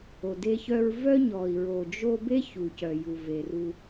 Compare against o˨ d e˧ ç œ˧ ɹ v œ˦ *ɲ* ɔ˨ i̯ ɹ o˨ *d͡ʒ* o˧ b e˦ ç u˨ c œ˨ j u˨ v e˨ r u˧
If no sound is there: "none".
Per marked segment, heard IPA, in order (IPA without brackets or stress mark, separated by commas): ɲ, d͡ʒ